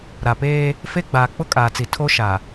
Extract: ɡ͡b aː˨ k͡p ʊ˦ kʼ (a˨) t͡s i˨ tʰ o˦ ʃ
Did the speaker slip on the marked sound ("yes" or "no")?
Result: yes